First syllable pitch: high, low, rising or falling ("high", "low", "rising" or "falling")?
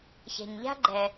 low